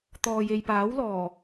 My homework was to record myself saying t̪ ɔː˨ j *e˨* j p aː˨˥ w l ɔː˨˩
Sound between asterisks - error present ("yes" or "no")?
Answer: no